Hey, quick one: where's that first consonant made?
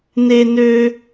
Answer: tongue tip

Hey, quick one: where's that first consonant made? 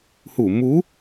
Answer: throat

